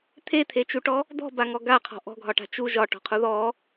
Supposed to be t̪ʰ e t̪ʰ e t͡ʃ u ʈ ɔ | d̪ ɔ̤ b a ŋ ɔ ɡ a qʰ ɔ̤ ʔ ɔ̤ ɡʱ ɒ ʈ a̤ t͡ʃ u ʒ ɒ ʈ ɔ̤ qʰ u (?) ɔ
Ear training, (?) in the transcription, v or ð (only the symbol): ð